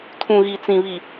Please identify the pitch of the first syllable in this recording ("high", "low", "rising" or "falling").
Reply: low